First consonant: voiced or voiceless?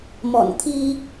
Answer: voiced